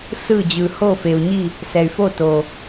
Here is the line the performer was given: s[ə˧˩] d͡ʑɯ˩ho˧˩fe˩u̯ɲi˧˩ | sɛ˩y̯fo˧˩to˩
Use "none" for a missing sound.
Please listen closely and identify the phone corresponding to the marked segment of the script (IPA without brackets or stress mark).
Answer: ɯ˧˩